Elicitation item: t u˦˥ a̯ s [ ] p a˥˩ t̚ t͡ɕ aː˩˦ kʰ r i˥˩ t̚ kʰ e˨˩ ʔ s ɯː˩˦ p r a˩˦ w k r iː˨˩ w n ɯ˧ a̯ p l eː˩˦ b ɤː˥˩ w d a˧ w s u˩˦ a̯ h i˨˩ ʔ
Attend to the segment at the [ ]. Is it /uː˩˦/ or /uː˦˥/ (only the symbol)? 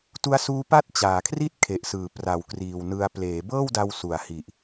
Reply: uː˦˥